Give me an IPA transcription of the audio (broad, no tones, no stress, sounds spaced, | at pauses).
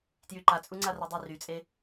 t j y ǃ a t͡sʼ u ŋ͡ǀ a r ɛ dˤ i r y t͡sʼ e